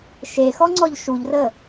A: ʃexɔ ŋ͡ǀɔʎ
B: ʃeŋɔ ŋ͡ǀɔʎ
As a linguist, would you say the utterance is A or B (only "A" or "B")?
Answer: A